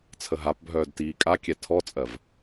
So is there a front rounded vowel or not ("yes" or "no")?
yes